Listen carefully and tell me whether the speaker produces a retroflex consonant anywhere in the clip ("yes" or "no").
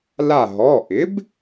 no